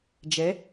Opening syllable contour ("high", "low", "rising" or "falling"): rising